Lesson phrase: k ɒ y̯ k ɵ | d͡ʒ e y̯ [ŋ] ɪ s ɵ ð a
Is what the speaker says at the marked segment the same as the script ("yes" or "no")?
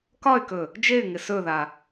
yes